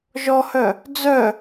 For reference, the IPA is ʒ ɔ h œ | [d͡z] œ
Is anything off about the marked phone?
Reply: no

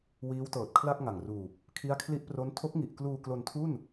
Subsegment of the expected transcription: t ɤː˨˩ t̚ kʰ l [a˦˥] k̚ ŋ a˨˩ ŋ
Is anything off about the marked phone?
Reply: yes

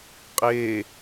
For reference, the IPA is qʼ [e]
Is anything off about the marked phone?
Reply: yes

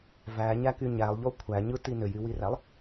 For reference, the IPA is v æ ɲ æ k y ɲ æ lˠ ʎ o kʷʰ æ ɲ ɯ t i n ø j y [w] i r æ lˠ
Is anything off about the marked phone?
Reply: no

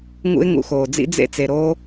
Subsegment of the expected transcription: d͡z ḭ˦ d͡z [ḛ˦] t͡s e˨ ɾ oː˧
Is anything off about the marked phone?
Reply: no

